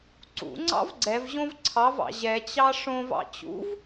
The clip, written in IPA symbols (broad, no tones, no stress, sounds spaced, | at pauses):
ǀ ṵ ŋ͡ǀ ɑ̰ v ɡ͡ǀ ɛ v ʑ õ v ǀʰ ɑ v ɑ̰ ʑ ɛ t͡ɕ ɑ ʂ õ v ɑ̰ t͡ɕ ṵ v